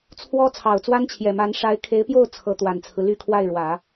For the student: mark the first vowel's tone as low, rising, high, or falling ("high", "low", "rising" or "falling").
high